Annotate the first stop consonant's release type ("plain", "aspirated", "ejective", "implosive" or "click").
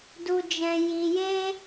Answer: plain